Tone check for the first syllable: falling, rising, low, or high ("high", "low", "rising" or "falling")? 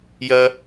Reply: high